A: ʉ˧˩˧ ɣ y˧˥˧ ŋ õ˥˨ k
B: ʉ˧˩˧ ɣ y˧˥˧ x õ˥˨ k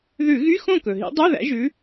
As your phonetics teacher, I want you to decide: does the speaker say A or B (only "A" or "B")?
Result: B